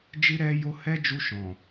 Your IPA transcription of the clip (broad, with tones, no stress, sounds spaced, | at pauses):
d͡ʒ i˦ ɾ ɛ˦ j o˦ h ɛ˦ d͡ʒ u˧ ʃ ɔ̃˨